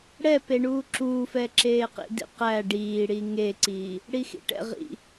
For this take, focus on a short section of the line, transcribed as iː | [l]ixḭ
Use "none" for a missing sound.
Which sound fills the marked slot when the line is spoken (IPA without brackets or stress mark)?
ɽ